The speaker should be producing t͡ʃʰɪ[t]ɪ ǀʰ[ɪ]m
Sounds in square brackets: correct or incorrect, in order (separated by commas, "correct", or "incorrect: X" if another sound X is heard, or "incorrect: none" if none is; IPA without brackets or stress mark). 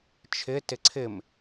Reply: correct, correct